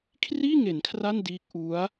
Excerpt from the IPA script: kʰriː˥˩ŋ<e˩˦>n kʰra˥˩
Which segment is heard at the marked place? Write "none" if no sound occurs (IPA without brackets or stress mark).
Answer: e˩˦